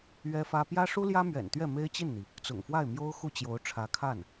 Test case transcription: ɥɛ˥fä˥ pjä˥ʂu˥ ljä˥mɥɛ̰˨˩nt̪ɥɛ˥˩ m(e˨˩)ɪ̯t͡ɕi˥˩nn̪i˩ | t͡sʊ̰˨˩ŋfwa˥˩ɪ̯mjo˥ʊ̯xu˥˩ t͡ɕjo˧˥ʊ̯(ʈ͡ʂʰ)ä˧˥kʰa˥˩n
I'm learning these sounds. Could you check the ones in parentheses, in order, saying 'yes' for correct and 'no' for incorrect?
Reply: no, yes

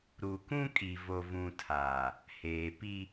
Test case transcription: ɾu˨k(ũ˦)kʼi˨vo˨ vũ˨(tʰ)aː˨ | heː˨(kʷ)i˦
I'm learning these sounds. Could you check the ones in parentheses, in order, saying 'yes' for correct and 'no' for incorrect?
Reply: yes, yes, no

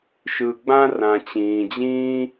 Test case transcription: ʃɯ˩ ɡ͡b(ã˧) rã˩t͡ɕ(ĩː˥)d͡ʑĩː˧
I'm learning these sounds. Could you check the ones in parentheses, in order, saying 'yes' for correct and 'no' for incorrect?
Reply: yes, no

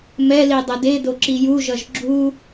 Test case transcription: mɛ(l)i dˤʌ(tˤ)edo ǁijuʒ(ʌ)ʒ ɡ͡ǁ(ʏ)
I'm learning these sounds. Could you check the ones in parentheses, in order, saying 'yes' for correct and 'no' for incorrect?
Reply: yes, no, yes, no

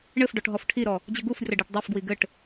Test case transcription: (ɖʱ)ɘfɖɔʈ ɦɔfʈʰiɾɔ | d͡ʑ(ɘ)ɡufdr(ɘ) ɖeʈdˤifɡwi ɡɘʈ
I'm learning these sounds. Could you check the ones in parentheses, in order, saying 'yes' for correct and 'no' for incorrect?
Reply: no, yes, yes

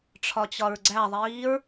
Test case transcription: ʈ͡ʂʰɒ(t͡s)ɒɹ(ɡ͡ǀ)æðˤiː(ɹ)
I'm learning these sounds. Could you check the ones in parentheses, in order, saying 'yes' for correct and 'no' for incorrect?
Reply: no, yes, yes

